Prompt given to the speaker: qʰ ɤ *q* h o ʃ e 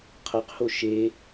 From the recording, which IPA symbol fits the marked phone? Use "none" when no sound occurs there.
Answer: q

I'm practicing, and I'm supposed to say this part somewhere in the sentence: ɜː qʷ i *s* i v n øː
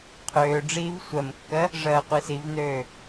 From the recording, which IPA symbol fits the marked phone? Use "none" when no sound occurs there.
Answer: s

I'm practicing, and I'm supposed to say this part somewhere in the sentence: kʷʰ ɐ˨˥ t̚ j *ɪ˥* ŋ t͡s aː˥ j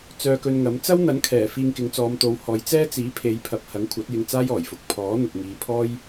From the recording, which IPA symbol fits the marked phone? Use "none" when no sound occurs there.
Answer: ɪ˧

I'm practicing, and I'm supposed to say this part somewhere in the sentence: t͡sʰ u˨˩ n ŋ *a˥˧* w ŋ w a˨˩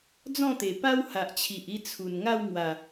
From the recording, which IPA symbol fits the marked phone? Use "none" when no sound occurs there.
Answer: a˥˧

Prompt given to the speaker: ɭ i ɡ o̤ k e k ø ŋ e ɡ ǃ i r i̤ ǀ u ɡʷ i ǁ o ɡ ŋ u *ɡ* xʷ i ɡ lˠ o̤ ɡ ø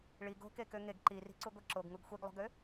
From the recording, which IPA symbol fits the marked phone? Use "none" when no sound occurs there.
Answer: ɡ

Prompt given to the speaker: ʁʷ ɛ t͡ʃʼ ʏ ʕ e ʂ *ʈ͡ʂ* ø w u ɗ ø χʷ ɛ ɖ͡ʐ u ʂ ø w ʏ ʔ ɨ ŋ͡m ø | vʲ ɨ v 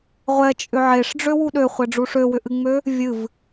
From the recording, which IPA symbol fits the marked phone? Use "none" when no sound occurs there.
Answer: ɖ͡ʐ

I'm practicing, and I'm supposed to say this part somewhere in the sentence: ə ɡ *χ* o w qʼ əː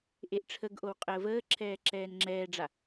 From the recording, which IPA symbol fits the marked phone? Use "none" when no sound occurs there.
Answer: ʔ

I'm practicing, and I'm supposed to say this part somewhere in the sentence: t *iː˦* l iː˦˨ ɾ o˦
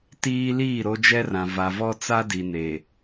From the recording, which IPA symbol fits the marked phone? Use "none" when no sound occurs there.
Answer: iː˦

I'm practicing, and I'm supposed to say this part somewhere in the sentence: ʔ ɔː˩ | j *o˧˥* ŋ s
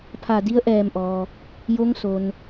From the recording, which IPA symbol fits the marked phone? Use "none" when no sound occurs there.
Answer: o˧˥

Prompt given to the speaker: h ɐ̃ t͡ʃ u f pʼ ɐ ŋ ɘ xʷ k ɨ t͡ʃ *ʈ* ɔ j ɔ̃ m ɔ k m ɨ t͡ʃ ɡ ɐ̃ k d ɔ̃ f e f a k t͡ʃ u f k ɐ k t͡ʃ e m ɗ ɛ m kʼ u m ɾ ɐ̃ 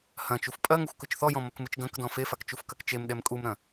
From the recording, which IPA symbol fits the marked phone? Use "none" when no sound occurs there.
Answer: θ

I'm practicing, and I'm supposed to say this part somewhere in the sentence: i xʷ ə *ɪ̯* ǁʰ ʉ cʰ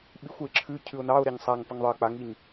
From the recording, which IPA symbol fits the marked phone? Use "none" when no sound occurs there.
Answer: ɪ̯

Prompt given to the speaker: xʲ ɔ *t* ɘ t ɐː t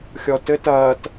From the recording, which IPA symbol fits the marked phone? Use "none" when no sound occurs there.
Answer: t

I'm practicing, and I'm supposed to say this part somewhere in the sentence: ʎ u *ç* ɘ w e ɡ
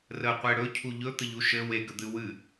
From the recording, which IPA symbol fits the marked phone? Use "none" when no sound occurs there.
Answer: ʃ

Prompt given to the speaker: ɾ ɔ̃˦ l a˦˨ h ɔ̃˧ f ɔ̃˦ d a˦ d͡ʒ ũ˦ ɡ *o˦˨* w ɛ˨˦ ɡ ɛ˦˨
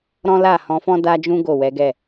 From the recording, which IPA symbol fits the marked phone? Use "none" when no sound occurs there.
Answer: o˦˨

